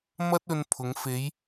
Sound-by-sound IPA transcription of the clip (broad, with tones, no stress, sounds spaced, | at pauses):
m ɐ˥ t̚ ɵ˧ n pʰ ʊ˨˧ ŋ f e˨˧ j